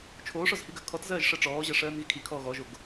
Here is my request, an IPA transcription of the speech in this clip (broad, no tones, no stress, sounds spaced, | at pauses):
t͡ʃʰ oː ʂ ɔ z h i ɡ ɜ kʰ ɔ t z ɜː ʒ ʂ ɜ ʈ͡ʂ ɔː ʑ ɜ ʂ ɜː n ɣ i kʰ i kʰ ɔː ɣ ɔ ʒ o ɡ